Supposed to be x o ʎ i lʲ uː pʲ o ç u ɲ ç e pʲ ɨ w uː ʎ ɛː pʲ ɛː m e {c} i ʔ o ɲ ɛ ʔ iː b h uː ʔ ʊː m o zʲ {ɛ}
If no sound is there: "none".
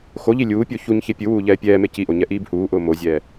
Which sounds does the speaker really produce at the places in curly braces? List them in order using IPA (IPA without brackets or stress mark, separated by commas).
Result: c, ɛː